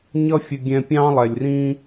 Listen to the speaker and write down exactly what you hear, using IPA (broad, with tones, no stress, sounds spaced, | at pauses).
ɲ ʌ˦ fʲ ə˧ ɡʲ ɛ̃˧ pʲ ɑ̃˦ lˠ ɛ˨ lʲ r ĩ˦